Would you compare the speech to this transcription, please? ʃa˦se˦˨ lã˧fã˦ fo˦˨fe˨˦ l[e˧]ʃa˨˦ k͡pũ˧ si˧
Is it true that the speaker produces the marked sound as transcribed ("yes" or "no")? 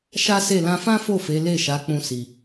no